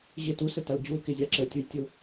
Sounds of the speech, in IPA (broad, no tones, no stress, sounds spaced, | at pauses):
ʑ ɪ t u s ə t a l d͡ʑ u l k ɪ zʲ a ǁ ə tʲ u j tʲ ʊ